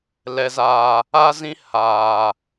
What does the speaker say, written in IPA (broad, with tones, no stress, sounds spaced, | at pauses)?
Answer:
l ɛ˨ z aː˨ | a˦ z ĩ˦ h aː˨